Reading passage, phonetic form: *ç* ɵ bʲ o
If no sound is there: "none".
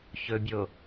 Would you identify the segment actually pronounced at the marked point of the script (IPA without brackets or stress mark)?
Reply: ç